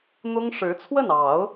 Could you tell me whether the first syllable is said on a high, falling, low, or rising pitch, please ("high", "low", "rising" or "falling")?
high